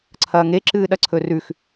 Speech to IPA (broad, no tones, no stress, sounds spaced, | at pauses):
ǀʰ ɐː ŋ e ǁ ɨː ɗ ɐ ǀʰ ɵ r ʉ x